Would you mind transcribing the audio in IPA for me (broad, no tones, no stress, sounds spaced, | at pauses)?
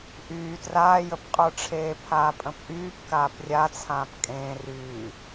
ʔ yː t r aː j ə p qʼ ə˞ ʈ͡ʂʰ eː pʰ aː pʼ ə̃ p ʔ yː p k aː p rʲ a t͡sʰ ãː p kʼ ẽː r yː